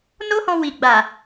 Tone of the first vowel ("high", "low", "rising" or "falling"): high